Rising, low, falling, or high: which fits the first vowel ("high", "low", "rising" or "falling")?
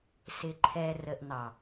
low